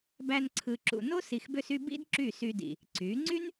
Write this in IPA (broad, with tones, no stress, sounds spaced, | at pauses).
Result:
b æ˧ n ǀʰ ɯ˨ ǁ ṵ˨ n o˦ s i˨ x b ø˧ s y˧ b ḭ˦ d ǁ y˦˨ s y˧ d ḭ˨ | ǀ y˨˦ ŋ͡ǀ y˦ n